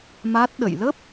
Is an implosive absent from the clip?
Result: no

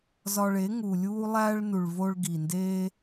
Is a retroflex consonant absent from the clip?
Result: no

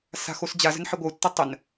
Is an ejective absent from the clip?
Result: yes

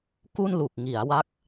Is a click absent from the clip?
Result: yes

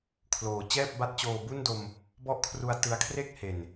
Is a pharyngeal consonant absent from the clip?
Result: yes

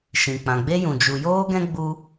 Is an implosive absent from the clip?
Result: yes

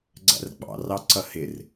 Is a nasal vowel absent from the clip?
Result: yes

